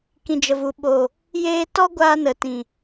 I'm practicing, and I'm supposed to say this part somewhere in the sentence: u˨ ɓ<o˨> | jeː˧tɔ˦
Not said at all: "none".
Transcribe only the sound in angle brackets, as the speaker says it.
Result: o˨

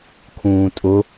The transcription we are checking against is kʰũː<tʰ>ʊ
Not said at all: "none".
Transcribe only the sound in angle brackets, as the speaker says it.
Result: tʼ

